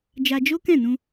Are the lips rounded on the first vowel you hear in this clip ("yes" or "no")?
no